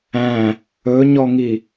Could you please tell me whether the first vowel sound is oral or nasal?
nasal